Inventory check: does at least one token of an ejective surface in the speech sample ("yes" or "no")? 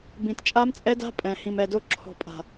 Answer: yes